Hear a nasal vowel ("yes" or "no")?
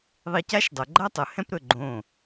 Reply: yes